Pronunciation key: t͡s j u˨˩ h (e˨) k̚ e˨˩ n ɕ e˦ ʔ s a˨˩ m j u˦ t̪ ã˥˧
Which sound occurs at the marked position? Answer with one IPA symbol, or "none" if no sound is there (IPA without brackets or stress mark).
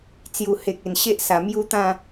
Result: e˨